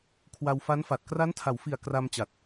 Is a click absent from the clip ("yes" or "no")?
yes